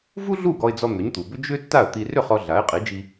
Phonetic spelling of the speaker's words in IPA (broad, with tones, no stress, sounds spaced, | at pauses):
v u˥ ɮ u˥˩ ɡ ɔ˧ ɪ̯ d͡z ɔ˧ n̪ ʏ˩˥ ɲ t̪ u˩ b ʏ˥ d͡ʒ ʏ˥ tː a˥˩ ə̯ t̪ i˧ r ʏ˥˩ χ ɔ˧ ɮ a˩˥ ɪ̯ qʼ i˩˥ d͡ʒ i˧